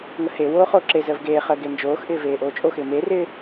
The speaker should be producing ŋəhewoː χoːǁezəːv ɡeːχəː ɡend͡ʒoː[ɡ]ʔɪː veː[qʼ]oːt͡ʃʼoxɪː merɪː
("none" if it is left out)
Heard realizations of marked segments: x, ʔ

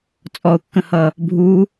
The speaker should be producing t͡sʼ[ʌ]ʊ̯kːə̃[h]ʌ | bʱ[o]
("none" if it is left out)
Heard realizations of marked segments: ɔ, h, u

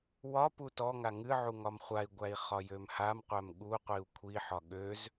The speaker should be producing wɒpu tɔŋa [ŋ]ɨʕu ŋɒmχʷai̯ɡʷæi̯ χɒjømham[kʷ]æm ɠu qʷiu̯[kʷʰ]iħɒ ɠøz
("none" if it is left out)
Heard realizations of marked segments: ŋ, qʷ, kʷʰ

